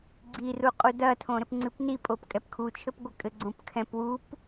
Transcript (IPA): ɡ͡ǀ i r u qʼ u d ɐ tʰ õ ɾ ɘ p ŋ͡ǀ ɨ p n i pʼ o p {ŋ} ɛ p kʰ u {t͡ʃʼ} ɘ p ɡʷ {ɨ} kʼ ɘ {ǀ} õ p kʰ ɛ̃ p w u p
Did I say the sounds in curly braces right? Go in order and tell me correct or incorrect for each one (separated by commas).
incorrect, incorrect, correct, incorrect